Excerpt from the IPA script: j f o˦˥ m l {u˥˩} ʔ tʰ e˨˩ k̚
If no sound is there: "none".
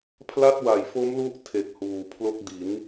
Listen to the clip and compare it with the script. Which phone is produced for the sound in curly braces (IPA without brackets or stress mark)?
u˦˥